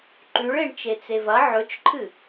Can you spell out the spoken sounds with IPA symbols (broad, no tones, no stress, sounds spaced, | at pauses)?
ǃ ʉ ɭ e ɳ t͡ʃ e t͡s e v ɐ ʕ ɵ t͡ʃ ǃʰ ɨ